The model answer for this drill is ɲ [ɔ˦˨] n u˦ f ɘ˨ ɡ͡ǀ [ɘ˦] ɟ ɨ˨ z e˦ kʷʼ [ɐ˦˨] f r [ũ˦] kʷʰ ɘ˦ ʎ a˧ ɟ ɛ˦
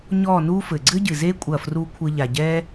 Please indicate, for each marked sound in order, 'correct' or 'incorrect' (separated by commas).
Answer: correct, correct, correct, incorrect